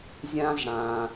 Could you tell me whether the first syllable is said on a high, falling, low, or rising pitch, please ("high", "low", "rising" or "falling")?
high